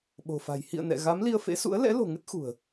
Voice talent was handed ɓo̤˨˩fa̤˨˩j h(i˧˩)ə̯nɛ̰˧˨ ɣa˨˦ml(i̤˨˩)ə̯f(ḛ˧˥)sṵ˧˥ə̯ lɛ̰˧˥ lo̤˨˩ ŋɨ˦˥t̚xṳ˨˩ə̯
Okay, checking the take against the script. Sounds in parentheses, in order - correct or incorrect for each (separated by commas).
incorrect, incorrect, correct